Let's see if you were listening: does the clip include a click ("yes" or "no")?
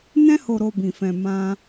no